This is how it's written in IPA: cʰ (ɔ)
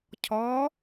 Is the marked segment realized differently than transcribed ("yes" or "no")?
no